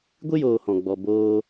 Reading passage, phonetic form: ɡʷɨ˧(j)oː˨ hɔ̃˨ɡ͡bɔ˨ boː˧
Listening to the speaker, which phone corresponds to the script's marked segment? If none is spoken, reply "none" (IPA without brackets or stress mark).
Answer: j